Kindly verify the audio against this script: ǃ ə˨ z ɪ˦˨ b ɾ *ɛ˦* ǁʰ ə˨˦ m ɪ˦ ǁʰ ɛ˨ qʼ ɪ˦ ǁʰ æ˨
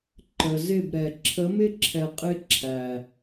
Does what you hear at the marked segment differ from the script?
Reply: yes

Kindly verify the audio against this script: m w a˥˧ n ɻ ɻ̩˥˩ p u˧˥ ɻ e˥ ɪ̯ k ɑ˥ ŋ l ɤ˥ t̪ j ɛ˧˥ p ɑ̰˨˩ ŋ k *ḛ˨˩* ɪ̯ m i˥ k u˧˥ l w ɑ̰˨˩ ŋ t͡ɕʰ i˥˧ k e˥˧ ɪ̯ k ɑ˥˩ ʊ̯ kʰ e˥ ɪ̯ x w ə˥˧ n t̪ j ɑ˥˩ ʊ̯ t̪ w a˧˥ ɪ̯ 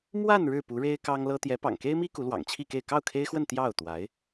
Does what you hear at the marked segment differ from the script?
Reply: yes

